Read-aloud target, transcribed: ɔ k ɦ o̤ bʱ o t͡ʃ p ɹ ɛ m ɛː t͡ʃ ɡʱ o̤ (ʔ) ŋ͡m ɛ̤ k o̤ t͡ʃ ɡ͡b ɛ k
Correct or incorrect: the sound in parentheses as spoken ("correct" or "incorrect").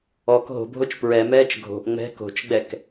correct